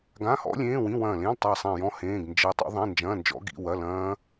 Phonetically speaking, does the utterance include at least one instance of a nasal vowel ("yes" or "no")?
yes